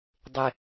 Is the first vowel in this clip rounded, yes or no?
no